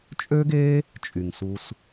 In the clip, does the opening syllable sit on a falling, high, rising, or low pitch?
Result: high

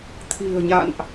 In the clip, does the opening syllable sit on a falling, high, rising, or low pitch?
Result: low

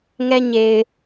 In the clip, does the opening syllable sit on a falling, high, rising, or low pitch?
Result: high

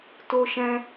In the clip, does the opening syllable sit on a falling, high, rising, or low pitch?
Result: high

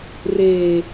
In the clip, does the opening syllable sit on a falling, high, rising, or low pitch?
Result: low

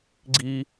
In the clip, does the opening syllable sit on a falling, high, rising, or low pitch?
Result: high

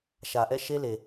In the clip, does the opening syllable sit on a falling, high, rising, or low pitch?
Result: low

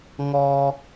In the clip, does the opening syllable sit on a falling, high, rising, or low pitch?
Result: high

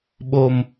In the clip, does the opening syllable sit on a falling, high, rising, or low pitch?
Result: low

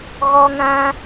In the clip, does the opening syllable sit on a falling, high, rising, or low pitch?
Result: high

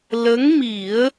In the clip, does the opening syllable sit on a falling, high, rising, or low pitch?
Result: rising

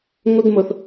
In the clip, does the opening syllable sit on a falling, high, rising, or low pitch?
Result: high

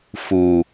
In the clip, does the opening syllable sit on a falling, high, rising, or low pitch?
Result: low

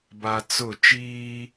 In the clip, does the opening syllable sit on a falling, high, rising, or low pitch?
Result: low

